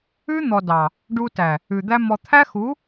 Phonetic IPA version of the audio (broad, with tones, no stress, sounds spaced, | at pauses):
ʉ˦ n̪ ɔ˨ d ɑ˨ | ɖ u˧ t æ˨ | ʉ˨ d̪ æ˦ m ɔ˧ t̪ʰ æ˦ x u˨˦